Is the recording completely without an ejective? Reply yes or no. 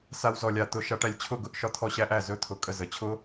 no